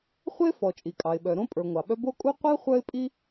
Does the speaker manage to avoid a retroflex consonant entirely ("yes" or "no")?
yes